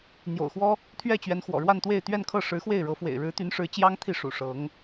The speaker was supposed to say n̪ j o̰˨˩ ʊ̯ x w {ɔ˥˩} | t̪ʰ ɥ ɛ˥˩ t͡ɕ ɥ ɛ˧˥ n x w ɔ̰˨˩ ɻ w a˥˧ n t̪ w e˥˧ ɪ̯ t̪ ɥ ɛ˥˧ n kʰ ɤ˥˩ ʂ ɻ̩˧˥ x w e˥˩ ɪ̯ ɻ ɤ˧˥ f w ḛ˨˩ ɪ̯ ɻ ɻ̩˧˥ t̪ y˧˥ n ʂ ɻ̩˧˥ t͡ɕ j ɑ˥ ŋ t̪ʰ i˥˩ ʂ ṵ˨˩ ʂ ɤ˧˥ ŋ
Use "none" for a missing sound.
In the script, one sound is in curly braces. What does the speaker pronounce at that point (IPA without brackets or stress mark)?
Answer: ɔ˥